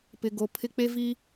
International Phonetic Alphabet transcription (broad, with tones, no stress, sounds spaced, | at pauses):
p ɪ˨ ɡ o˨ pʰ ɪ˦ k͡p e˦ v iː˦